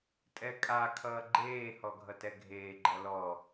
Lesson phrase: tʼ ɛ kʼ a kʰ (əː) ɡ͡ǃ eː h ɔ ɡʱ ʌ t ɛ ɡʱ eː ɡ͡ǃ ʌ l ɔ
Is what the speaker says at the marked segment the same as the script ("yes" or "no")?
no